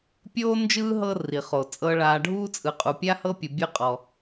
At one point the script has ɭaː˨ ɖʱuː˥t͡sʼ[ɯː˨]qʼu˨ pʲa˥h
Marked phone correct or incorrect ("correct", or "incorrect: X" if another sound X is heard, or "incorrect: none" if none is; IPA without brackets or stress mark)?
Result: incorrect: ɯ˨